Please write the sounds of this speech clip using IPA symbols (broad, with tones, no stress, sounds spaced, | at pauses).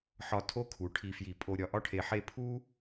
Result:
ħ ɒ˧˩ tʰ o˧ kʰ u˩˧ ʈʰ i˧ f j i˧˩ pʼ o˧ ɾʲ ɒ˧ ʔ ɒ˥ ʈʰ e˧ ħ e˥˧ pʰ u˥